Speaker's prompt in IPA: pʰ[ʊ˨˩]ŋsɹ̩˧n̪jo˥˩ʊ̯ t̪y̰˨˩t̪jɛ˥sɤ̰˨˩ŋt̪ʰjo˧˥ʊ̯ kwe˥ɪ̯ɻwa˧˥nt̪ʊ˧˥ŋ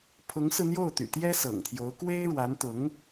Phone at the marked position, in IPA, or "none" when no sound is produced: ʊ˧˥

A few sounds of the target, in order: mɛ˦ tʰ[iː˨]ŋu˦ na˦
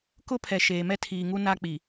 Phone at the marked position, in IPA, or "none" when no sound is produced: iː˨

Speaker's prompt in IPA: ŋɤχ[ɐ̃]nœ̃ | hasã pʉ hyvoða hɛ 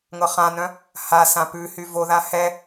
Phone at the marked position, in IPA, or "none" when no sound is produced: ã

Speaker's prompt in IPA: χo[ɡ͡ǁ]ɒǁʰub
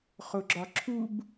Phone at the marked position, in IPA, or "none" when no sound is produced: ɡ͡ǁ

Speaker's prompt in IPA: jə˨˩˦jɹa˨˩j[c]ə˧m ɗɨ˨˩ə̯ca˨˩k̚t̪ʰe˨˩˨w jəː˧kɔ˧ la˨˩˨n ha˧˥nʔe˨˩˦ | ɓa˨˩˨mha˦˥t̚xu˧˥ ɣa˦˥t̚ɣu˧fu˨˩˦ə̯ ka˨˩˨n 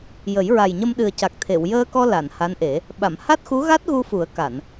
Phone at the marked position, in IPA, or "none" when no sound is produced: ɲ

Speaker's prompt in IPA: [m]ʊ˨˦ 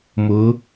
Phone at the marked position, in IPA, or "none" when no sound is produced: m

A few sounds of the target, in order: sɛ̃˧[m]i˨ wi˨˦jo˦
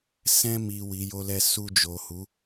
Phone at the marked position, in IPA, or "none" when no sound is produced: m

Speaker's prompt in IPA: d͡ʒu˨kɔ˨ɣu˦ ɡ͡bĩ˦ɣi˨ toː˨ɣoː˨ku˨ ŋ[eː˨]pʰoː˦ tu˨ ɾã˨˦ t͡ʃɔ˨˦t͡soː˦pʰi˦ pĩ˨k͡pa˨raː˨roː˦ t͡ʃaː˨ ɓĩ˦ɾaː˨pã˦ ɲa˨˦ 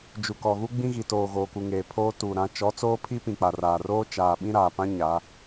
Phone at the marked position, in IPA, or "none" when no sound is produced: eː˨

